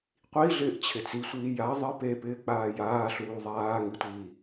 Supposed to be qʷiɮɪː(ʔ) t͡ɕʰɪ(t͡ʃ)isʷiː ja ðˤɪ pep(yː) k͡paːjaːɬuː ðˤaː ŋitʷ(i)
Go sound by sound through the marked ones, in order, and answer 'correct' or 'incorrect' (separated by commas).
correct, incorrect, incorrect, incorrect